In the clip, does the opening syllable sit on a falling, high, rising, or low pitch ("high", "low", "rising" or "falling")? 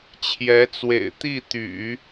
rising